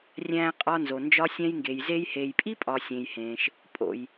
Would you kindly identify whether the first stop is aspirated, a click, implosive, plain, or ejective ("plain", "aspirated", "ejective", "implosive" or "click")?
ejective